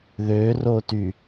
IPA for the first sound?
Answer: ð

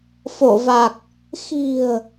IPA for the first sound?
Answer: f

